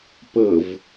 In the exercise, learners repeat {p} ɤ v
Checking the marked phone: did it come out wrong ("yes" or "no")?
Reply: no